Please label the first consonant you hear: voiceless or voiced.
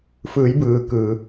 voiceless